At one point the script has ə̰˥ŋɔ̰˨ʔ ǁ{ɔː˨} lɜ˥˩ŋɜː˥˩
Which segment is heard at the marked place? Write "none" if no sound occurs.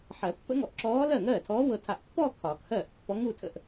ɔː˧˥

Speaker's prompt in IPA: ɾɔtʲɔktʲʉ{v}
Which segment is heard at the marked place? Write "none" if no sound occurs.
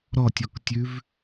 v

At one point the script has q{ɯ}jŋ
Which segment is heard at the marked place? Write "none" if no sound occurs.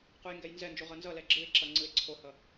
u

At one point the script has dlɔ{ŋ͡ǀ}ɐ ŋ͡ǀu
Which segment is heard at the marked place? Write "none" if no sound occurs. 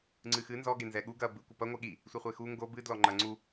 ŋ͡ǃ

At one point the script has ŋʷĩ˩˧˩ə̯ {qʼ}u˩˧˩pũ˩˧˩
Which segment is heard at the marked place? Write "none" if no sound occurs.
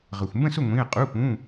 qʼ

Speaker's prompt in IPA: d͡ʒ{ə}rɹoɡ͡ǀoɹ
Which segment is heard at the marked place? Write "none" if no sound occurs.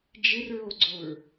ɪ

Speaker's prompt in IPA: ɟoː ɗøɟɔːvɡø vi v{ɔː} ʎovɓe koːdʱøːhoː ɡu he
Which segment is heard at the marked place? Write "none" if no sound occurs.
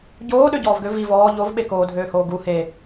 ɔː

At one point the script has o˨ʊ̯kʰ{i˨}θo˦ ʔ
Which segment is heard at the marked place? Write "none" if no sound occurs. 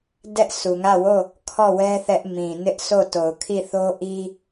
i˦˨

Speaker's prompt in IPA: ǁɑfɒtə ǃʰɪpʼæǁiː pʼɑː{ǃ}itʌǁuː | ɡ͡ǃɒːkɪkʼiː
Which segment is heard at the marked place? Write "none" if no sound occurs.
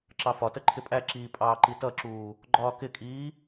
ǃ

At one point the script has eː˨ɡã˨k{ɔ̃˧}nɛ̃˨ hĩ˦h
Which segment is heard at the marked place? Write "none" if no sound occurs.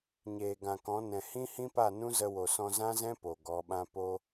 ɔ̃˨˦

